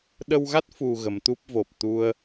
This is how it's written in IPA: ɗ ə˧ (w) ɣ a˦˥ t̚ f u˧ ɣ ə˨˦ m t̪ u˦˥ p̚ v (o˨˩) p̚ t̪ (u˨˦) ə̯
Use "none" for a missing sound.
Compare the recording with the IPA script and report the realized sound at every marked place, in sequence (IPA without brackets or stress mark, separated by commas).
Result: w, o˨˩, u˧